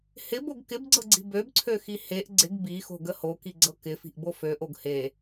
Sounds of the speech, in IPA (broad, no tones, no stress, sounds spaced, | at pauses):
h ɪ b o ɡ k ɪ b ɡ͡ǀ ɤ ɡ͡ǀ i̤ b ø b ǀʰ ø x i h e ʔ ɡ͡ǀ ɪ ɡ b i x o̤ ɡ ə h o k i ɡ͡ǀ ɤ k ɪ f i̤ ʔ b o f ø ʔ o ɡ h e